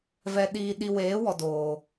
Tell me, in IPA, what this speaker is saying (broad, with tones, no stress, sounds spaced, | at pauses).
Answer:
v ɛ˧ ɗ iː˧ ɗ i˧ w eː˨˦ w ɔ˨ d oː˨